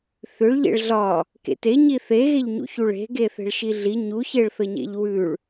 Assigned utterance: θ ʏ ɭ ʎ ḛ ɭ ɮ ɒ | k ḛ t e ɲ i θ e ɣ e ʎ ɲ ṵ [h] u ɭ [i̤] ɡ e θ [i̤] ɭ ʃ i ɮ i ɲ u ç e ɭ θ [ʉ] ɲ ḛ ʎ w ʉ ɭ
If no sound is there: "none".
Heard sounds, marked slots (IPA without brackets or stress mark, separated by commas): ç, e̤, e̤, ə